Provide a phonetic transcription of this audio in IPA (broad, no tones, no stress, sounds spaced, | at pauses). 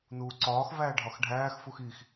n uː ǀ ɒː x v æː ɖʱ ɒ x ɖʱ æː x f u x i x